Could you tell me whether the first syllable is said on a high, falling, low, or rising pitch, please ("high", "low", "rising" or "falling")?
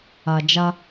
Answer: low